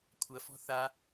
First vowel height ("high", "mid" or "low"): low